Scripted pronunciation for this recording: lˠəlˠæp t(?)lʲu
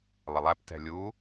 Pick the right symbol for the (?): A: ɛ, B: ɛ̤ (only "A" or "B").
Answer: B